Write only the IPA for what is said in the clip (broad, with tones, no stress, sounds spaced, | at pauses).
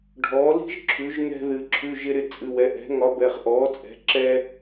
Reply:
ɖʱ ɔː˩˥ l i̤˥ ʒ ǁʰ ʉ˩˥ ʒ n̪ ɛ̤˧ ð ɨ˩˧ ǁʰ ʉ˩˧˩ ʒ ɪ˧ ɾ ɪ˧ t͡sʼ ɨ˩˧˩ w ɛ˩˧˩ ʔ ɛ̤˩˥ ŋ ɒ˩˥ b ɛ˩˧˩ χ ʔ ɔː˩˥ t͡sʼ ɛ̤˩˥ ǁ ɛ˧